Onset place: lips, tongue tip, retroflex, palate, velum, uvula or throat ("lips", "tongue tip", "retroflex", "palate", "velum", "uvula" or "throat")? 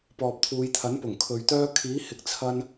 lips